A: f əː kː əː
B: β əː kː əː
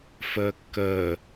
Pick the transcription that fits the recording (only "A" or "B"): A